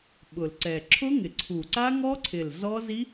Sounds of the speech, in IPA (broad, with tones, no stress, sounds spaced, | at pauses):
ɓ ʊ˨˩ l ǀ ɛ˨˩ ǁʰ ʊ˦˥ ŋ ɪ˨˩ ǀʰ u˨˩ ǀ a˦˥ ŋ ɔ˦˥ ǀʰ ɪ˨˩ l z ɔ˦˥ z i˦˥